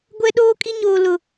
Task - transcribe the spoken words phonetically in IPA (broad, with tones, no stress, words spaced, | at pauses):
ɡʷɛ˦ɗoː˦kʼi˦ ɲoː˦lʊ˦˨